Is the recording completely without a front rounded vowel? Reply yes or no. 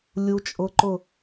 yes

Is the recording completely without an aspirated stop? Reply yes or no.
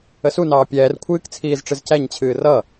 no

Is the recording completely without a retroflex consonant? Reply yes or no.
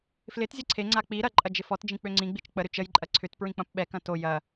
yes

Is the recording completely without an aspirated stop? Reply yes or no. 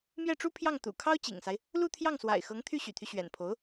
no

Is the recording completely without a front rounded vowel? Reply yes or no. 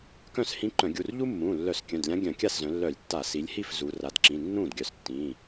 no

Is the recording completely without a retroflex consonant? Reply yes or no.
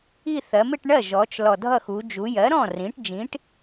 no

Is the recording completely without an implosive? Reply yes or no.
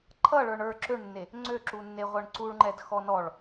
yes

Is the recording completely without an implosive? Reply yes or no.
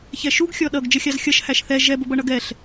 no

